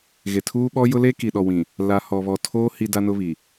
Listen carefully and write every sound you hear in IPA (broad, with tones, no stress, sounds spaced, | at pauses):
ɣ e˨ tʰ uː˦ ɓ ɔ˦ j ʊ˦ l eː˦ k i˨ ɗ ɔ˨ w ĩ˨ | l a˨ h ɔ˨ β ɔ˨ tʰ oː˦ h i˦ d a˦ n ʊ˦ β i˨